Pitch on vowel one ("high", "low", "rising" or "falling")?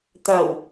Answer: low